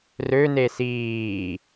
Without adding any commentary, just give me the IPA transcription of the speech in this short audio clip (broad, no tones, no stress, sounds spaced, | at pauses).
r ø n e s iː